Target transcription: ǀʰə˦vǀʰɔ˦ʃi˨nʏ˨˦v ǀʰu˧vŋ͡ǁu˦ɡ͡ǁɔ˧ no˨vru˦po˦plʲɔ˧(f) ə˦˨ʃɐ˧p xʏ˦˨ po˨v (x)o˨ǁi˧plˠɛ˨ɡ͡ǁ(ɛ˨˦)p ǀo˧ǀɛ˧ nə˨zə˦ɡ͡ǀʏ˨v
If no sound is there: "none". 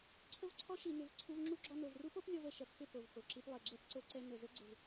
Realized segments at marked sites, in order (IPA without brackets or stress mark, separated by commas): v, x, ɛ˦